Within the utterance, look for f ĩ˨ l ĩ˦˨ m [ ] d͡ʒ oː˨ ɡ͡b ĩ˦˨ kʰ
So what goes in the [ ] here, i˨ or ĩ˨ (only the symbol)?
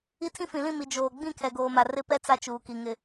i˨